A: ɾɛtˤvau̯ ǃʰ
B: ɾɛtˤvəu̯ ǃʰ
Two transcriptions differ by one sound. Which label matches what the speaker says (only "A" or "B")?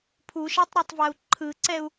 A